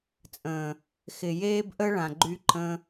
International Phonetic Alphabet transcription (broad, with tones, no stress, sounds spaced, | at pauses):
t͡sʼ ə̃ː˨ | x ɪ˨ j eː˦ b ʔ ə˦ ɭ ã˨ ɡ͡ǃ y˦ ǃ ə̃˦